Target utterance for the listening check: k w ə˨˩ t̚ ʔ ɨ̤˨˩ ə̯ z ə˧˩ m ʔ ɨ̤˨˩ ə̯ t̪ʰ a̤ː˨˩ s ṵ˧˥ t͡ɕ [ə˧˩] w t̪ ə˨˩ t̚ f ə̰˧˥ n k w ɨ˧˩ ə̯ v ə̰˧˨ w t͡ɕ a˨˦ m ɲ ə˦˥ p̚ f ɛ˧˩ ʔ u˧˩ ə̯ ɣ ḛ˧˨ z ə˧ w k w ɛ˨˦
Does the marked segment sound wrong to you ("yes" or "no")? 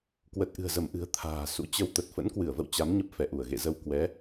yes